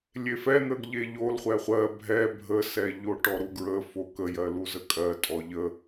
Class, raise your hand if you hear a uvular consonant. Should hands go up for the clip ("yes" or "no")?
yes